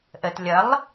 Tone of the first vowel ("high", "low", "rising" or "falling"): low